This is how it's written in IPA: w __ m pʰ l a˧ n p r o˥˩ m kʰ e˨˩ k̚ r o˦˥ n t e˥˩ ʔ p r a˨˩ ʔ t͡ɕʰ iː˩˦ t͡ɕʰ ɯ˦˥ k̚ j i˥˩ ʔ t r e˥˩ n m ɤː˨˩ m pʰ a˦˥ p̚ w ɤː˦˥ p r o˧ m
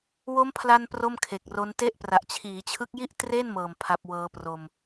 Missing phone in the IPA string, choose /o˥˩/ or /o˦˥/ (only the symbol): o˦˥